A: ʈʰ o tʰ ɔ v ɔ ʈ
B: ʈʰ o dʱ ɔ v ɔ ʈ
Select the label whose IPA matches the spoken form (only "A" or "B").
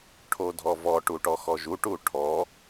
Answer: B